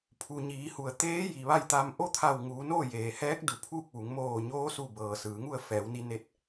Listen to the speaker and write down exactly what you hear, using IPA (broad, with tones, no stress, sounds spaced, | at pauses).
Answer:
pʰ u˩ ɲ iː˩˧ h u˩ ə̯ t̪ eː˧˥ j i˩ ʋ a˥˨ j t̪ a˧ m ʔ o˥˨ t̪ʰ a˧˩ w ŋ uː˩˧ n oː˥˨ j eː˩ h ɛː˧˥ k̚ d u˩ pʰ uː˥˨ k̚ ʋ u˩˧ ŋ m oː˧˩ ɲ oː˧˥ s u˧˩ b ɤː˩ s ɯː˩˧ ŋ u˥˨ ə̯ f ɛː˩˧ w n i˧ n e˧˥ t̚